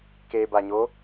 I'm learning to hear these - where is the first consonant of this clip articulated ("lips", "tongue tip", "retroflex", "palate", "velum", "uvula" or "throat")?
velum